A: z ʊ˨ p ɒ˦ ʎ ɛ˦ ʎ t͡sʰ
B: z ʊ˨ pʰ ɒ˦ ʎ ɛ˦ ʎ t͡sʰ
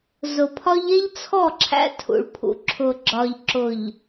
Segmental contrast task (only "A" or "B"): B